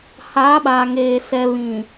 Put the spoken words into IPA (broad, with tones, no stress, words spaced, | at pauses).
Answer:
haː˨˦ɓa˨ŋeː˨ sɛ˨ βĩ˨